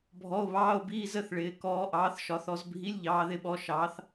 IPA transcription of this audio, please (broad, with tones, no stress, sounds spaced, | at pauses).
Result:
bʱ ɔ˧˥˧ o̯ β ɑː˧˥˧ o̯ b iː˧˥˧ z ə˧˥˧ θ ɭ ɪː˨˦ k ɔː˨˦ ʔ ɑː˨˦ θ ʃ ɒ˨˦ θ ɔ˨˦ z bʱ i˧˥˧ lʲ ʎ ɑː˨˦ ð ɪ˨˦ ɓ ɔ˨˦ ʃ ɑː˨˦ θ